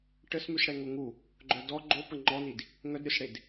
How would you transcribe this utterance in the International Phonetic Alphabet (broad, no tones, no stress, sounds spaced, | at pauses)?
ʈ ə s m y s ɽ ɛ ŋ o ŋ u | ɡ͡ǃ œ d ɔ ɡ͡ǃ o p ə ŋ͡ǃ ɔ n i d | ŋ œ d ɾʲ o s ɽ e d